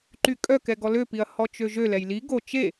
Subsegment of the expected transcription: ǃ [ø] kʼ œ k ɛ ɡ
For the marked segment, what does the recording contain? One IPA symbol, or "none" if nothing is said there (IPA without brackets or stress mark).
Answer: y